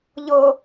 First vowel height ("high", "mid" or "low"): mid